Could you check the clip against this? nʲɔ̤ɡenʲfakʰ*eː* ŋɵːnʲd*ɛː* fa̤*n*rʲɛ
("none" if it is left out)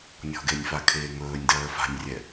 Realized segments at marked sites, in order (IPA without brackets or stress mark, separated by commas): eː, ɜː, nʲ